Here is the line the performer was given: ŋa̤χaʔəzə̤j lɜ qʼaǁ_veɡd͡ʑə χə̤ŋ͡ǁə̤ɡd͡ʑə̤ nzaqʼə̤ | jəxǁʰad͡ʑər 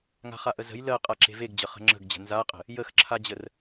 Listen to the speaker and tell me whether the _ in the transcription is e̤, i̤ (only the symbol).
e̤